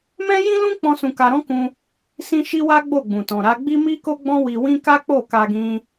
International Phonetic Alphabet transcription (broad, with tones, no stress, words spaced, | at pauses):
mɛ̃˦jĩ˦lũ˦k͡pɔ̃˧ sũ˧ka˧ɾɔ̃˦ kũ˦ | sĩ˦ ʃi˦wa˦ ɡ͡bo˦˨ɡ͡bũ˨tɔ̃˨ ɾa˨˦ɡ͡bi˦mi˦ko˦ ɡ͡bɔ̃˦wi˧wĩ˦ ka˦k͡po˦˨ka˧ɡĩ˧